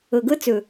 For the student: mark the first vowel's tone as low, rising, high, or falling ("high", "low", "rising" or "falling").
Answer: low